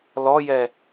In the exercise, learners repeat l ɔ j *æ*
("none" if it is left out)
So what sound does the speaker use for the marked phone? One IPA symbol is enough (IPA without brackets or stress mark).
ɛ